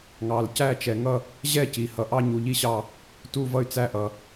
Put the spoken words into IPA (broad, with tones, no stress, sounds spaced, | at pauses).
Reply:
ŋ ɑ˩ l c æ˦˨ t͡ʃ ɛ˩ ŋ ʌ˦˨ | ʑ ɛ˦˨ c i˩ h ʌ˩ ʔ ɑ˦˨ ɲ u˩ ʎ i˦˨ ɕ ɑ˦˨ | t u˦˨ v ʌ˦˨ y̯ t͡s æ˦˨ ʔ ʌ˩